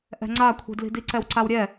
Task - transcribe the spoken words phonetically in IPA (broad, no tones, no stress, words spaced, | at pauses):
ʔɛ̤ŋ͡ǀakʷʰi̤dli̤ diǀɛwǀawɾʲɛ